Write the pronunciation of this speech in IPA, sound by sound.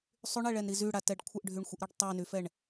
sˤ y ɳ ɛ ɭ ɛ n ɾ i z y ɽ a t ɛ ɖ kʷʰ ə ʔ ɖʱ y ɳ xʷ ə ʔ ɾ e ɖ tˤ e n y f ɛ ɳ

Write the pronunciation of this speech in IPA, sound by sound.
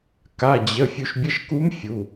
k a˧˥˧ d͡ʑ ə˧˥˧ fʲ u˧ ʃ bʲ ə˧˥˧ ʃ k u˦˥ m fʲ u˧˥˧

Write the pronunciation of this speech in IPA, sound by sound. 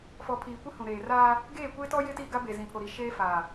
f ɔ˨ pʰ iː˨ kʷ ɪ˦ h ũ˨ ɾ eː˨ r aː˦ | ɡ eː˦˨ kʷ e˦ t ɔ˦ j ɪ˦ t i˦˨ ɡ a˦ b e˨ z ĩ˨ pʰ o˨ ɾ i˨ ʃ eː˦ f aː˨

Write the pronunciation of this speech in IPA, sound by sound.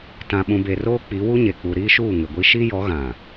t ã˨ ɓ ũ˨ b e˨ r oː˦ k͡p i˨˦ w u˦ ɲ e˨ k͡p u˨ ɾ iː˦ ʃ uː˦˨ ŋ ɪ˨ ɡʷ i˦ ʃ i˦ j ɔ˨˦ ɣ ã˨

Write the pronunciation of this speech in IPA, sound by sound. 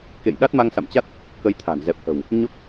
k ḛ˧˨ j ɗ a˦˥ t̚ m a˧ ŋ s a̰˧˨ m t͡ɕ a˦˥ t̚ | k ə˧ j t̪ʰ a̤˨˩ n z ɛ˨˩ p̚ h ə̤˨˩ w | ɲ o˦˥ k̚

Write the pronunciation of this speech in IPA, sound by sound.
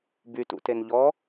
b y t ṵ t e n ʎ ɔ

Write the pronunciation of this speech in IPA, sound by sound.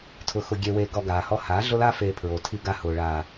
tʰ ʊ˨ x ʊ˨ ɡʲ e˨ w eː˨ ɡ ɔ˨ ɡ aː˨ h ɔ˧ h aː˨˦ ɮ o˦ l a˦ f eː˧ pʰ ɹ o˨ tʰ i˧ ɡ a˧ h ʊː˨ ɭ aː˨

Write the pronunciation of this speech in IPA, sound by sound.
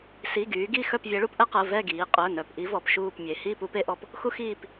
s i˩˧˩ ɡ yː˩˧ ɡ i˦˨ x œ˦˨ p vʲ ɛ˨˥ ɭ u˦ p ʔ ɛ˦ q əː˩˧˩ v ɛ˦˨ ɡ iː˩˧ qʼ œ˩˧˩ n œ˩˧˩ p ʔ i˨˥ v ɔ˩˧ p ʃ uː˦˨ p mʲ e˩˧˩ h iː˦˨ p u˩˧ p e˩˧ ʔ ɔ˦ p | x u˦ x iː˦˨ p

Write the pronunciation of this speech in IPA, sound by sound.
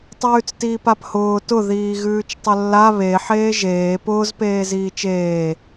tˤ ʉː t͡s t iː p a p h ʊː t ʊ ð iː ɣ ʉː t͡ʃ tˤ ʊ lː a β e ħ eː ʒ eː p ʊː z p eː z iː t͡ʃ eː

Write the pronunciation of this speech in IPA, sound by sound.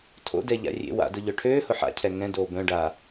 tʰ o̰ d ɛ ʎ a̰ rʲ ḛ w a̰ d ʊ ʎ œ ʈʰ øː h ʊ ħ a̰ cʰ ɛ ŋ ɛ̃ d oː b œ̃ ɖ a

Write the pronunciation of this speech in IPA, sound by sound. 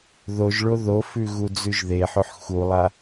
ð o ʒ ɭ o ð o f ʉ ɣ u d͡z ʉ ʒ ð e ħ ɵ ħ x u lˠ a

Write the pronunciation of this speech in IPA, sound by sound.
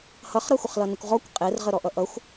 h ʌ χ ɾ ʌ xʷ ə χ l ʌ n ə kʷ ʁ ɔ kʷ qʼ e r ʁ ə ɾ ɔ ʔ ʌ ʔ ʌ xʷ

